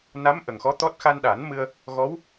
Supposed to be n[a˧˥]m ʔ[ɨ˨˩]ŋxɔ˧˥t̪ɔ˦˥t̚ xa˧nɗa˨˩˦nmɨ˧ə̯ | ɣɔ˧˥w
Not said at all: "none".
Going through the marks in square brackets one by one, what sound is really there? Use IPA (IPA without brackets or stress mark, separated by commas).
a˧˥, ə˨˩